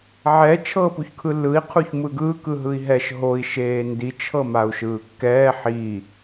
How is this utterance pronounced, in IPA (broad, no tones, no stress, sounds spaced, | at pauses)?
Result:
ʕ ɛ t͡ʃʰ ɤː p u ç kʰ ɯ lː ɯ i̯ qʰ u ç m ɯ ɡ ɯː k ɯ ɦ ɯ i̯ ɦ ɛ ʃ ɦ o i̯ ʃ eː n d i t͡ʃʰ ɤ m a u̯ ʃ ɯː kː ɛː ħ i